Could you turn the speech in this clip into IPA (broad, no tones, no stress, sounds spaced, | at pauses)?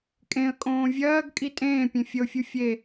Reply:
kʼ ẽ ə̯ kʼ õː vʲ ɜː ɡ kʼ i tʼ ẽː pʲ ẽ fʲ ə ʊ̯ fʲ u fʲ e